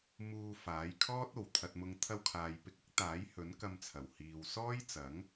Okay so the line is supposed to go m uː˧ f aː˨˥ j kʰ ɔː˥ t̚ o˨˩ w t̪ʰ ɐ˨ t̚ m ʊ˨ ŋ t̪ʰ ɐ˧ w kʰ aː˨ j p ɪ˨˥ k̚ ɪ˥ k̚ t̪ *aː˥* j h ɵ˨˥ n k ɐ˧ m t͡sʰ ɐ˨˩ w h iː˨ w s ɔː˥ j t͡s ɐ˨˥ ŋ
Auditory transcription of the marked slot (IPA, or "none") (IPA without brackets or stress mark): aː˨˥